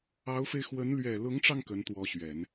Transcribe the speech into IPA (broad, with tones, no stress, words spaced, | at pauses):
ɑ˧˥ʊ̯fe˧ɪ̯xwə˧˥n lɥɛ˨˩lʊ˧˥ŋʈ͡ʂɑ˧ŋ kə˧˥nt̪wɔ˧˥ɕɥɛ˨˩˦n